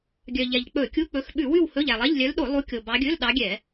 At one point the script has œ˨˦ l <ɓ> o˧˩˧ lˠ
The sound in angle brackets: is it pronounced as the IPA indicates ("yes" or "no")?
no